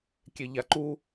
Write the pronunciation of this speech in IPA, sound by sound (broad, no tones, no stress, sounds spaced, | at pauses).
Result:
kʲ e ʎ a ǃ u